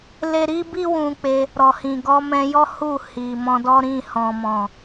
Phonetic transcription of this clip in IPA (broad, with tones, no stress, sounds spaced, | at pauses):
l e˧ ɾ i˦ b i˦ w ũ˧ k͡p e˧ | ɾ ɔ˨ h ĩ˨ ɡ ɔ˨˦ m ɛ̃˧ j ɔ˦ h u˦˨ h i˨ m ɔ̃˧ d ɔ˦ ɾ ĩ˦˨ h ɔ̃˨ m ɔ̃˨